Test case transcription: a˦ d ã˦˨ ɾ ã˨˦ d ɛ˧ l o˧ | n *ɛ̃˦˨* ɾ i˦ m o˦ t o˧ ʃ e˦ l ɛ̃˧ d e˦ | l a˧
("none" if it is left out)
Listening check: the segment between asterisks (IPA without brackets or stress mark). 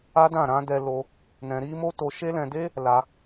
ɛ̃˧